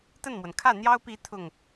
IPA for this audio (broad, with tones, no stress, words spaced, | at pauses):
t̪ə˥˩nmwə˩n kʰä˥˩n̪jɑ˥ʊ̯pi˧˥ t̪ʰʊ˥˩ŋ